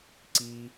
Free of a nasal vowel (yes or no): yes